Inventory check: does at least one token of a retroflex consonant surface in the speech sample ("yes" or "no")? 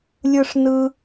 yes